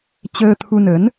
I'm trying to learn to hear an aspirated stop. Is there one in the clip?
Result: yes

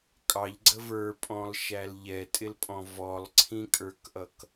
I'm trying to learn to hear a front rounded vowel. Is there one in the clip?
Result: no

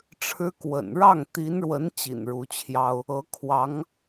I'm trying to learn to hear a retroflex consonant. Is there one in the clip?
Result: yes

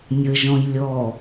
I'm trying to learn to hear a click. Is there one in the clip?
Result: no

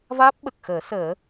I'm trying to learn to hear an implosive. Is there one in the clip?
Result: yes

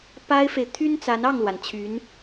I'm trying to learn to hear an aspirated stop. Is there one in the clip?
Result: yes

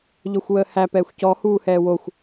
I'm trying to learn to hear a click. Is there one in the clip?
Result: no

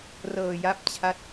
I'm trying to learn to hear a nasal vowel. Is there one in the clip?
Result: no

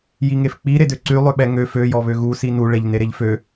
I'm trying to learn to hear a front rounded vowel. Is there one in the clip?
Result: yes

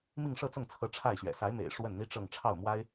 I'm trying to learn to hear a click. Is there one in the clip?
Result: no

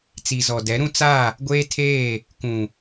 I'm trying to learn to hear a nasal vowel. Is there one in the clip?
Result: yes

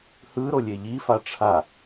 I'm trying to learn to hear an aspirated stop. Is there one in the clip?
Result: yes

